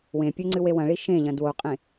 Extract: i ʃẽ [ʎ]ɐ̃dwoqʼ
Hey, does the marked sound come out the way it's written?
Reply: yes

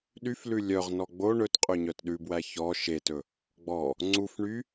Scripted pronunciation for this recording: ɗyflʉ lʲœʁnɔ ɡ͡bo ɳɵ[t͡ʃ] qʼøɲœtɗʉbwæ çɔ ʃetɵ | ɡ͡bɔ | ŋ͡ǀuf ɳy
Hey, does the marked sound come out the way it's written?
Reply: no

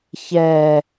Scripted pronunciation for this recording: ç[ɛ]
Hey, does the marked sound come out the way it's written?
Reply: yes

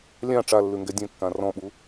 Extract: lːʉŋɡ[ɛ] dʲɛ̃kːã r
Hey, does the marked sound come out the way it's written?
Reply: yes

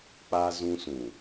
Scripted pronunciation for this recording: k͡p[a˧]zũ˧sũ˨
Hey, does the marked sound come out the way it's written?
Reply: yes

